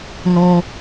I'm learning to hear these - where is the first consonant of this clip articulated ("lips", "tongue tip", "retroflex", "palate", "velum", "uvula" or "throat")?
tongue tip